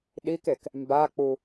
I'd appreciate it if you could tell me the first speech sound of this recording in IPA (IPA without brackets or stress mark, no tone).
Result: ɗ